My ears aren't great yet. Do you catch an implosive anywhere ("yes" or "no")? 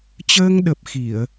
yes